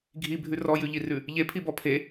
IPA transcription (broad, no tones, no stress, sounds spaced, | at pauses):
ɡʱ i bʱ ʉ r ɔ j ʉ ʎ i r ʉ | ʎ e pʰ i b ɔ pʰ e